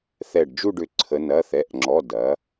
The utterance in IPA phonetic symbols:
θ ɛ˧˩ ɖ d͡ʒ u˥˧ ɖ ʏ˧˩ ǀʰ ə˩˧ n ɐ˩˧˩ θ ɛ˩˧˩ ʔ ŋ͡ǁ ɔ˩˧˩ d ɐ˩˥

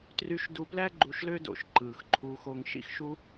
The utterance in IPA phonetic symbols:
t r y˧ ʃ d u˧ p l æ˥ ɡ͡ǃ u˧ ʃ l ø˥ d o̰˧ ʃ ǃ ɯː˩ x ǃʰ u˧ x o˧ ŋ ʃ ḭ˥ x ʃ u˥

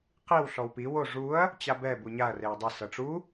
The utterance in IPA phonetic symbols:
q i w ɬ ɔ w p i w o ʐ u ɐ̯ | t͡ɕ a b ɛ b u ɲ a ɐ̯ r e ɐ̯ dˤ ɛ s ɤ ʈ͡ʂ u

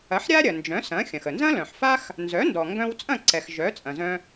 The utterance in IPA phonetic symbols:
ɐ˩˥ ħ ɾʲ a˥ ɾʲ ɐ˩ n d͡ʒ œ̃˩˥ s ɐ̃˩˥ xʲ ɐ̃˩ x ə˩ n z ɐ̃˥ l œ̃˩ ħ f a˥ x | n z œ˩˥ n d ɔ˩ ŋ ɡ œ̃˧ w t͡sʼ ɐ̃˥˩ ǀ ɛ˩ x ʒ œ˩˥ t͡sʼ ɐ̃˩ z œ̃˧

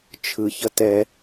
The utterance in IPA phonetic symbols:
t͡ʃʰ ɯ ç ʌ t ɛ

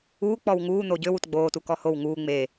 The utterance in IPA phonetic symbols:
uː k͡p ɔ w ŋ uː n̪ o ɟ ø w u t ɡ͡b oː t u k ɔ h o w ŋ uː ŋ͡m e

